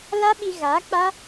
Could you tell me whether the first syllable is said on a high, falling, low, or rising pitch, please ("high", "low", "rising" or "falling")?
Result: high